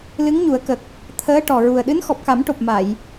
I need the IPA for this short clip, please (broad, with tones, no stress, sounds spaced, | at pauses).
l ɨ˧˥ ŋ ɲ u˨˩˦ ə̯ k ə˨˩ k̚ | t̪ʰ əː˧˥ ʈ ɔ˨˩ ɹ u˨˩ ə̯ ɗ ɨ˧˥ n x ɔ˨˩ p̚ k a˨˩˦ m ʈ o˨˩ p̚ m a˨˩˨ j